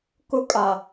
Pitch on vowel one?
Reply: high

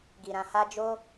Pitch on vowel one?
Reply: low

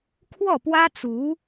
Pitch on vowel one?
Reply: falling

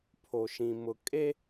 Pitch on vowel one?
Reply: low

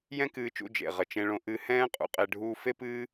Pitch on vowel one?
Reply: high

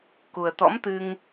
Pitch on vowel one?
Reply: low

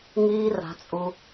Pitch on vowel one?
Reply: high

